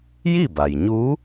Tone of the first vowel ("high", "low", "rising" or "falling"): falling